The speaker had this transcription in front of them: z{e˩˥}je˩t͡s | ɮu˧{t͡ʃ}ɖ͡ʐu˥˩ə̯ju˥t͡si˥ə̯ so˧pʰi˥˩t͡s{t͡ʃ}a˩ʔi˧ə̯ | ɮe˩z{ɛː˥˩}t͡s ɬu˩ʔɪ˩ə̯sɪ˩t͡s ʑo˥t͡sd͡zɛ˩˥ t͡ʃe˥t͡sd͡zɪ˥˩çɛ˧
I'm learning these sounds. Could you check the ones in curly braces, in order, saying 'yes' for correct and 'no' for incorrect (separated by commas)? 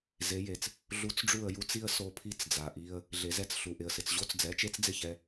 yes, no, no, no